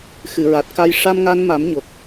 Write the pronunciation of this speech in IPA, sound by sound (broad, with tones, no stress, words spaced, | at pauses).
xɨ˨˩˨ ɹa˨˩t̚ka˧j ʂa˧mŋa˧nma˨˩˦mɲo˨˩k̚